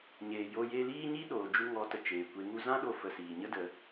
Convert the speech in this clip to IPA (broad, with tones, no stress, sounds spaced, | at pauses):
ɲ eː˨ j o˧ j e˧ l iː˦ ɲ i˦ ɗ oː˨ d͡ʒ u˧ ŋ ɔ˨˦ t ə˨ t͡ʃ eː˨ kʷ e˨˦ ŋ u˧ z ã˦ ɗ o˧ f ə˨ s iː˨ ɲ ə˦ d ə˨˦